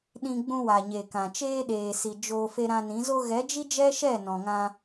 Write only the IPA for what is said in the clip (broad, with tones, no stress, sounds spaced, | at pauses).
ɗ ĩ˧ ɡ͡b ũ˧ w a˨ ɲ e˨ k ã˨ t͡ʃ eː˧ ɗ eː˨ s i˨ d͡ʒ o˧ f e˧ ɾ ã˧ n ĩ˨˦ z o˧ ɣ ɛ˨˦ d͡ʒ i˦ d͡ʒ ɛ˦ ʃ ɛ˦˨ n ɔ̃˨ ŋ ã˧